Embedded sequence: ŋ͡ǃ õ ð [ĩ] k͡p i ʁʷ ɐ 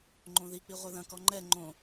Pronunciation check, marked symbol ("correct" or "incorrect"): incorrect